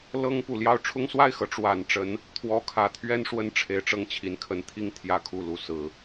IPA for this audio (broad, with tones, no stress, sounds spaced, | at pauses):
l ɤ˥ ŋ p u˨˩ l j ɑ˥˩ ʊ̯ ʈ͡ʂʰ ʊ˥ ŋ s w a˥˩ ɪ̯ x ɤ˧˥ ʈ͡ʂ w a˨˩ n ʈ͡ʂ ə˧˥ n | t̪ʰ w ɔ˧˥ kʰ ä˨˩ t̪ʰ ɥ ɛ˥ n ʂ w ə˥ n ʈ͡ʂʰ e˧˥ ɪ̯ ʈ͡ʂ ɤ˥˩ ŋ t͡ɕʰ i˧˥ n kʰ ə˧˥ n t̪ʰ i˥˩ ŋ t̪ʰ j ä˥ kʰ u˥˩ l u˧˥ s ɹ̩˨˩˦